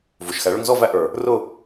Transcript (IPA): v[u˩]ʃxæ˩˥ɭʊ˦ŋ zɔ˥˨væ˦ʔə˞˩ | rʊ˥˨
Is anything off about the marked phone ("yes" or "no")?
no